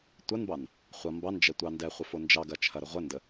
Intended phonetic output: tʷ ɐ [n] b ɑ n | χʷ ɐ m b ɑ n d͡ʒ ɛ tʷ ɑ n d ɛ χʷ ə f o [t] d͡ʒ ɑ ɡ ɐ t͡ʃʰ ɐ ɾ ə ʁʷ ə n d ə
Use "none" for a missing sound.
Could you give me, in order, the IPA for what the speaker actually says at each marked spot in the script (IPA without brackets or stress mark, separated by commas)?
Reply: n, n